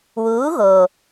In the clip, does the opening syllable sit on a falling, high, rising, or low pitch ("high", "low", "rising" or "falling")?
rising